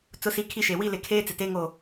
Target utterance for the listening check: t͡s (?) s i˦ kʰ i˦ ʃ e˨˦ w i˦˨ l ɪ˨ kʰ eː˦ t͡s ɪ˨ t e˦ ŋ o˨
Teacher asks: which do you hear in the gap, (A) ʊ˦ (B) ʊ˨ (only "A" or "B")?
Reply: A